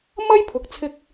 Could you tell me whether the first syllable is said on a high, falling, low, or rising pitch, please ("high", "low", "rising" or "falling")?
high